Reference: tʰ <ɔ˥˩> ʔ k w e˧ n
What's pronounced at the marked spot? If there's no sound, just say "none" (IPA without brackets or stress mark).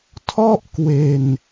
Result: ɔ˥˩